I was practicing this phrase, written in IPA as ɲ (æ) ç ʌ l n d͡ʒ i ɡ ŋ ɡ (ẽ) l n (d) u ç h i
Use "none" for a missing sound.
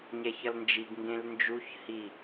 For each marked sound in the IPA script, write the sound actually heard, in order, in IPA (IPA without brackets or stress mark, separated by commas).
ɛ, ẽ, d͡ʒ